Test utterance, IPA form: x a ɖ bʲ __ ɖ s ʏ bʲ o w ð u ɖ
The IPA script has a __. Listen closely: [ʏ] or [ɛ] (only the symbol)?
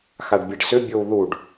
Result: ɛ